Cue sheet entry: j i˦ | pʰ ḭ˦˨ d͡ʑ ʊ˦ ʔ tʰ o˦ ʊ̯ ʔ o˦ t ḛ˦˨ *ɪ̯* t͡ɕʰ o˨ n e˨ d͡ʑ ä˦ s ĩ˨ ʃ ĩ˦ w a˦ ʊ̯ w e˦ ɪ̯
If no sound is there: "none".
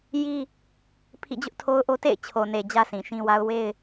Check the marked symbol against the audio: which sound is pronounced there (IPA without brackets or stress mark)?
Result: ɪ̯